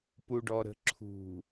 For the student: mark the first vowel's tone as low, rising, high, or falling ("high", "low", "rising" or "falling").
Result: low